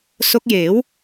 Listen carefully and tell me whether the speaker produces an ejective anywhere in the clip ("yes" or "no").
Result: no